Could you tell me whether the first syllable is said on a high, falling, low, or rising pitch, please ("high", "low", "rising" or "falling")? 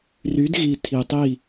rising